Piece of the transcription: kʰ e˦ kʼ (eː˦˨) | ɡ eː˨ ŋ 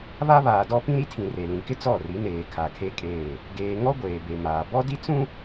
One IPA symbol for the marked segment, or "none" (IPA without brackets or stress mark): eː˦˨